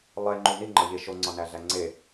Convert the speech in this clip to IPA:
lˠ e ŋ͡ǃ u n i ŋ͡ǃ ɒ ʎ e ʃ o ŋ͡ǀ ɒ n æ ɮ æ ŋ͡ǀ e

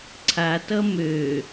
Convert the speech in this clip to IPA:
ǀʰ a t ʌ m ø

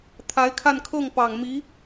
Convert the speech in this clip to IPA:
t̪ʰ a˧˥ ɪ̯ kʰ a˥˧ n kʰ ɤ˥˩ ŋ p ɑ˨˩ ŋ m i˧˥

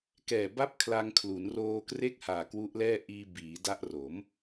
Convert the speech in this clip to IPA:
k ɛː˨˩ b a˦˥ p̚ kʰ l a˧ ŋ kʰ l u˩˦ n r oː˧ k r e˥˩ k̚ h aː˨˩ k w u˦˥ ʔ l ɛː˥˩ ʔ iː˧ b iː˩˦ d a˦˥ ʔ r o˩˦ m

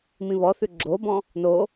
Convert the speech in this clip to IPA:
m ĩ β ɔ θ ʉ ɡ͡ǁ o b ɔ̃ | n o

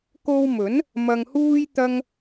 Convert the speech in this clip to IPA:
k o˧ w m ɵ˨˥ n | m ɐ˧ ŋ h uː˥ j t̪ ɐ˥ ŋ

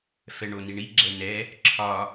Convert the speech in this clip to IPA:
f ɛ ɳ o n i ɳ i ɡ͡ǁ ɛ n ɛ | ǁʰ ɒ

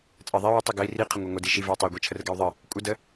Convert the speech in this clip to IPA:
t͡sʼ ɜ ðˤ i w ə tˤ i ɡ ə i̯ r i qʰ ə ŋʷ ɜ ŋʷ ə d i ʃ i v ɜ i̯ tˤ e u̯ ɡʷ e t͡ʃʰ ə r ɡ ɛ u̯ ðˤ ə | kʷʼ ə d ə

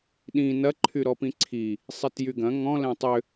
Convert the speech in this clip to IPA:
ɗ ĩ n ɐ ǃʰ y ɾ ɔ p ĩ ǀʰ i | sˤ i t j y ɡ ɐ̃ ŋ ɔ̃ l ɛ̃ tˤ ʏ

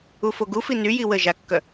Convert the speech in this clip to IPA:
u f o ɡ u f i n y j i w ə ʒ a kː œ

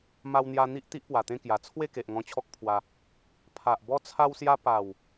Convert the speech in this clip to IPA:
m a˧ w n̪ j a˧ n̪ i˦ ʔ t̪ i˦ ʔ p w a˨˩ t̪ ẽ˥˧ k j a˨˩ t͡sʰ w e˥˧ k e˨ ʔ ŋ ɔ̃˧ t͡ɕʰ ɔ˦ k̚ pʰ w a˧ | pʰ a˨ ʔ b ɔ˦ t͡sʰ a˦ w s j a˦ p a˨˩ w

